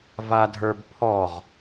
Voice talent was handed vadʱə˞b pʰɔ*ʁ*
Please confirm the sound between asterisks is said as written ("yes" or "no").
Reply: yes